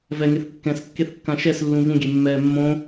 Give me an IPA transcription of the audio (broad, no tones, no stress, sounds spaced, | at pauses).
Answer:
v ɛ ŋ e θ kː ɛ̃ s kː e θ kː ã ʃ ɛ s lː ũ v ũ ɡʲ e mː ɛː mː õ